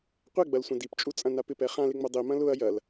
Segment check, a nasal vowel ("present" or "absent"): present